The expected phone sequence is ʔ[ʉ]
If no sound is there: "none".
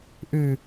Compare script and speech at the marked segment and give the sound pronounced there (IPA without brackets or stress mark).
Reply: ʉ